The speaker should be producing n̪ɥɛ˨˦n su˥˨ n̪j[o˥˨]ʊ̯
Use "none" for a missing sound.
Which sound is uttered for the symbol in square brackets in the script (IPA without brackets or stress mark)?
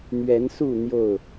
o˥˨